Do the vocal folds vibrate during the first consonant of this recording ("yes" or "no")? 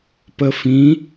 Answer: no